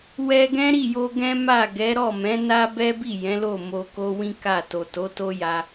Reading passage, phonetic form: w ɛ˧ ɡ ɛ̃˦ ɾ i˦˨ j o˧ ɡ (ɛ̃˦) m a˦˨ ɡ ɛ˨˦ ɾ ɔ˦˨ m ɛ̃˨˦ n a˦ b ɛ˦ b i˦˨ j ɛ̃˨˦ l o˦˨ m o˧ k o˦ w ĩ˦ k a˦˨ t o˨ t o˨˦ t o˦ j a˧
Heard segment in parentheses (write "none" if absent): ɛ̃˦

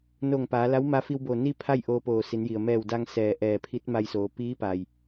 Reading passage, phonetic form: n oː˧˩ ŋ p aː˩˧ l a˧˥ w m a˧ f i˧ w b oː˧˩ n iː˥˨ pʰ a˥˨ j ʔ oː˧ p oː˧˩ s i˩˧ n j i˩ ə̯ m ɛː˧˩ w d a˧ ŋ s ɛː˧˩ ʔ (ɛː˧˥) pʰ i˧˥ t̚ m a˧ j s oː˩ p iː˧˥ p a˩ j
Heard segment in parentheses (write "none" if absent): ɛː˧˩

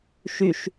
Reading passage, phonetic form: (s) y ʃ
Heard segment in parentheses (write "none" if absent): ʃ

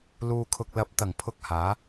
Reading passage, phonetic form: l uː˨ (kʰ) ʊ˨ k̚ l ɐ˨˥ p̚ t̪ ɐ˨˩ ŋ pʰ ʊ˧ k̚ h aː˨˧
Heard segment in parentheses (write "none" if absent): kʰ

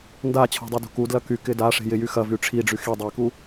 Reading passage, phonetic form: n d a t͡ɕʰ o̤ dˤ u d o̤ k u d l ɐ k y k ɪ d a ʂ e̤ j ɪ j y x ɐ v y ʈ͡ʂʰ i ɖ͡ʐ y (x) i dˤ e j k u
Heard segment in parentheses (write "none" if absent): x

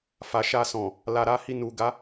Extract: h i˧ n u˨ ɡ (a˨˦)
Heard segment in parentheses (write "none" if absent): a˨˦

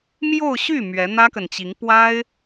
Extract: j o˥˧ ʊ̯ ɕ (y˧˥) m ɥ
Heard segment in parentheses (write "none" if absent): y˥˩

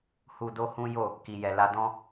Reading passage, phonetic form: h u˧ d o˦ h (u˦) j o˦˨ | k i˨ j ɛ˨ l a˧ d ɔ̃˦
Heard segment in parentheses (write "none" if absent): ũ˦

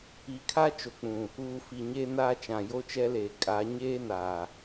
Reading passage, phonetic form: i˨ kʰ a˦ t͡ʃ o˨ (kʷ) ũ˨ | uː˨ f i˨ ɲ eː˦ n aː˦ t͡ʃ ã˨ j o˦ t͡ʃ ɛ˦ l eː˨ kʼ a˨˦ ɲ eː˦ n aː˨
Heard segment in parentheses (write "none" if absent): k͡p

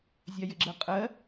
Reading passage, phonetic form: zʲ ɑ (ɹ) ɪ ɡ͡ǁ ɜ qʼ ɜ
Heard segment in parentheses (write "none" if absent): j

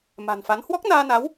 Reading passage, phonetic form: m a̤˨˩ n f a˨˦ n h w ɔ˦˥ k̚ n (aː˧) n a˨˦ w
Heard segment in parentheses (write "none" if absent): aː˧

